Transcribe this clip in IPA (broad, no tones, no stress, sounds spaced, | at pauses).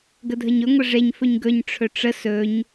ɡ ə dʱ ə ɲ ɵ ŋʷ ə ʐ e ɲ f ɵ ɲ ɡ ɵ ɲ ʈ͡ʂʰ ɵ ʈ͡ʂ ə s ɵ ɲ